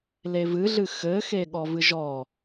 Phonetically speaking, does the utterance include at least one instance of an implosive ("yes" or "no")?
yes